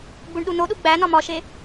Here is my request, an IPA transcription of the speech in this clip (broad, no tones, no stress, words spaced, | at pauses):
ɡ͡buɳɗunoɗu ɡ͡bænɒ mɒʃe